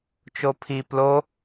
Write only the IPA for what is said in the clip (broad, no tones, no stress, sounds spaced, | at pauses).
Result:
t͡ʃ o pʰ i p l o